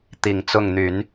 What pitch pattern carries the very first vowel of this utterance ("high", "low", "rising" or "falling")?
low